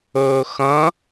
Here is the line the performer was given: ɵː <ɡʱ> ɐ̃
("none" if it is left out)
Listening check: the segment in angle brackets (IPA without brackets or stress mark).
x